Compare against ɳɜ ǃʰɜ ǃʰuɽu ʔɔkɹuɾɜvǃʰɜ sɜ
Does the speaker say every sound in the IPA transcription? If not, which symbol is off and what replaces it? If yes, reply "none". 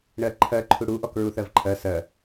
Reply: ɾ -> θ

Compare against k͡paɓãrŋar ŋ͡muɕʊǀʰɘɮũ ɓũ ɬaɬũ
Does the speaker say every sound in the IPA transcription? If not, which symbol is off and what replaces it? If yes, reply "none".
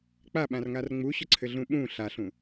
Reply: none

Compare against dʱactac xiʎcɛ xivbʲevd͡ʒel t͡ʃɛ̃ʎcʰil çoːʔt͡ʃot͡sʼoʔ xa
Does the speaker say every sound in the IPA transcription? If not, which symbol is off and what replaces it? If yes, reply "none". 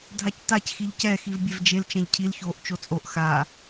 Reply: none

